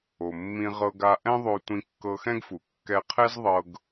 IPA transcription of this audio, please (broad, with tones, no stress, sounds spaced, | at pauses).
o˩ mː ĩ˧ ʁ ɤ˧ ɡ a˧ ʔ ɛ̃˥ ðˤ o˧ tʷ ĩ˧ kː ɤ˧ x ɛ̃˥ ɡ f u˩ kː ɛ˧ qʰ ɛ˥ z ðˤ ɤ˧ ɡ